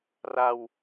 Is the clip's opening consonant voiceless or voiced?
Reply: voiced